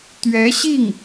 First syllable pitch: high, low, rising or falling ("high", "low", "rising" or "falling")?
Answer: rising